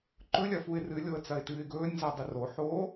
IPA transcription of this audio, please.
ǃɵlʲɐ fuɪ̯rɨlʲoə̯ t͡sɐɪ̯tɨːɪ̯ɡɵːnʲza dˤɨroħoː

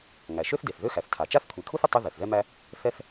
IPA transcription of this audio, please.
ŋæ˩ʃø˥θde˩θ ðø˥xæ˩θtʰa˩ t͡ʃa˥θkʷʰi˩kʰu˥θ ə˩tˤʉ˥ ðɛ˩θðɛ˥mæ˥ | θɛ˥θ

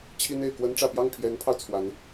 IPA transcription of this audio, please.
t͡ɕʰi˥ne˨˩ɪ̯ kwə˧˥nʈ͡ʂä˨˩pjɑ˥˩ŋ pʰjɛ˧˥npʰɑ˧ʊ̯ t͡sʰwa˧˥n

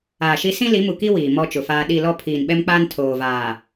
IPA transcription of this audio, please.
aː˨ʃi˦ sĩ˦li˨˦mu˨ ki˦ wiː˨mɔ˦t͡ʃʊ˨faː˦ ɗi˦˨ lɔ˦ pʰiː˨nɓɛ˦mk͡paː˦n tʰoː˨vaː˨

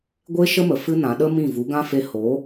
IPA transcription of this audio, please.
ɡʷe˦ʃə˦mə˨ fɨ˦nã˨˦ ɗə˦mĩ˦˨ vu˨˦ɡã˦fe˧ ho˨˦

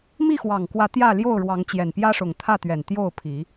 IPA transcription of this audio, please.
mi˥˨xwɑ˨˩ŋkwä˨˦ t̪jä˥˨ ljo˥˨ʊ̯ɻwɑ˨˦ŋ t͡ɕjɛ˨˩npjä˦ʂʊ˨˩ŋ t̪ʰä˥˨t̪ɥɛ˨˩n t̪jo˥˨ʊ̯pʰi˨˦

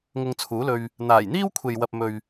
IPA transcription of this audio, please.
ŋʊ˧ŋ t͡sʰuː˨˥lɵ˧ɥ | n̪aː˨˩jn̪iː˥wkʷʰe˨jwɐ˨p̚ mɵ˨ɥ

